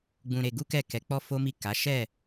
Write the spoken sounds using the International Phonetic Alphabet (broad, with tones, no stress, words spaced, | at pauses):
ɡ͡bũ˧ɾe˧ ɡu˦kɛ˦˨ kɛ˨˦k͡pɔ˦ fo˦mi˦˨ ka˨˦ ʃɛ˦˨